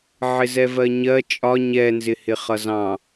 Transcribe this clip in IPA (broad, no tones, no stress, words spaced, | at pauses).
ʕɪzɛvɜɲɜ t͡ʃʼɒ ɲɛnzɪhɪ χʌzɑ̃